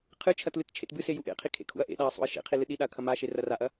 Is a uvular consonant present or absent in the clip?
present